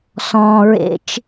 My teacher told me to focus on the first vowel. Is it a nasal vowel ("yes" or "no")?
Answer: yes